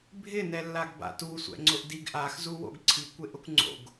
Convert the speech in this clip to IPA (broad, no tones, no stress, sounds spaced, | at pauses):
bʱ ɪ n ɛ lː a ɡ b a̰ t u sʷ ɛ̰ ŋ͡ǀ ʊ ʔ d i ɡ ʔ a x z u w o̰ ɡ ǀʰ i kʷ e ʔ ʊ kʷ ŋ͡ǀ o̰ ɡ